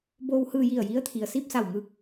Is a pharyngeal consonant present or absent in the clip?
absent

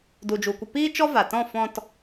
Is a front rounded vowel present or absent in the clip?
absent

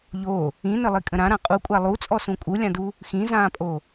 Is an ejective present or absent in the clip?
present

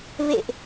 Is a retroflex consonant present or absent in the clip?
absent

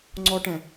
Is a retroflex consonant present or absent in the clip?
present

